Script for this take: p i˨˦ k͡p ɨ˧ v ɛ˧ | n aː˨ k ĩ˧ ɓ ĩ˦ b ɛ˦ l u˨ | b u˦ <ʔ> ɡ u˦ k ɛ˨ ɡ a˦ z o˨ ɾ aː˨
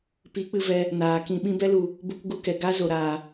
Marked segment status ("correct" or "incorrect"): incorrect